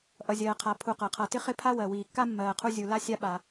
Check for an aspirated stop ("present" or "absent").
present